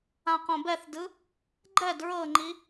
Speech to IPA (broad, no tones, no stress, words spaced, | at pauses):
ãqõbɛθdɯ | ɡ͡ǃɛd ɹɤŋ͡ǃi